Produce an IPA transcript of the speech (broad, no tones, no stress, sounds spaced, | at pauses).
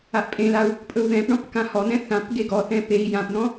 a ʔ pʼ ẽ l a u̯ | pʼ ɵ u̯ ð ɛ̃ p ɳ ɔ̃ p k ã h ɔ n̪ ɛ̃ θ ã p ɡ e ɡ ɔ θ ɛ̃ p e i̯ j ã p n̪ ɔ̃